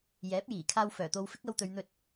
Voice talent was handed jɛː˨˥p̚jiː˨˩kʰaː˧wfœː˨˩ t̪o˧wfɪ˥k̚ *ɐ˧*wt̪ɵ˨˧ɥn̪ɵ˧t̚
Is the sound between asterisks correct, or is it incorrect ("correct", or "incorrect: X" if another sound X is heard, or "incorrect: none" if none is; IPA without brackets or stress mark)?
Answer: correct